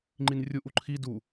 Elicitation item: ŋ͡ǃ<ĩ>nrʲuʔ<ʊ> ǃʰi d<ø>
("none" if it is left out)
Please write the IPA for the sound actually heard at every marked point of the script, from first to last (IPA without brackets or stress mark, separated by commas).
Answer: i, u, u